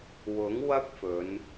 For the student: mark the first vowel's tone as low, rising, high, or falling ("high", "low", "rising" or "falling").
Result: rising